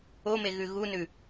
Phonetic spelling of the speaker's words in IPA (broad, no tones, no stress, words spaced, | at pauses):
ome ɣʉɣunʉ